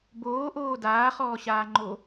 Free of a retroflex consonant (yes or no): yes